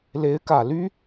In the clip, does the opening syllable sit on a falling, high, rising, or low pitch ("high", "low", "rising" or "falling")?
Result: rising